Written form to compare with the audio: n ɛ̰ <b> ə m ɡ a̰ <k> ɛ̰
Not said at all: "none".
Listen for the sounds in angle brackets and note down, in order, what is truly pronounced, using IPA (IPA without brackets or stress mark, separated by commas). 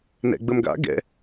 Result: ɡ͡b, ɡ